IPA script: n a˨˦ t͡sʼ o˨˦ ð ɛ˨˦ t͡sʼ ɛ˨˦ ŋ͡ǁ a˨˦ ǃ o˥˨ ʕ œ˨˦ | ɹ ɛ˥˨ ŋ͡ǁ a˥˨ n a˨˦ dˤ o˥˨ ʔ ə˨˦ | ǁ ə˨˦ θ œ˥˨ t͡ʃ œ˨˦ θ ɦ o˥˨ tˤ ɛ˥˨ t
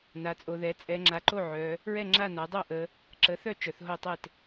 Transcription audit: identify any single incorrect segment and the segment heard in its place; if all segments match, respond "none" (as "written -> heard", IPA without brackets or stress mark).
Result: none